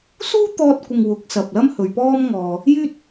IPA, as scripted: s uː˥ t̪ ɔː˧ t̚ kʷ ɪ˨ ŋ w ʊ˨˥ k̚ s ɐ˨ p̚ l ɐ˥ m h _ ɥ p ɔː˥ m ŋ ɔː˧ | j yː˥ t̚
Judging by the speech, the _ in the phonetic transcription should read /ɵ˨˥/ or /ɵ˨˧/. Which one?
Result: ɵ˨˧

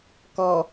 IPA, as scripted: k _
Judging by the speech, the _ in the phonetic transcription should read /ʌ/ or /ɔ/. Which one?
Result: ɔ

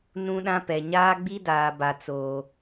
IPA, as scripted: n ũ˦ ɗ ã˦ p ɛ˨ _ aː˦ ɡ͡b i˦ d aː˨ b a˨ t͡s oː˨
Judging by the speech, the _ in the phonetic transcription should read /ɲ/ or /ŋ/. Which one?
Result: ɲ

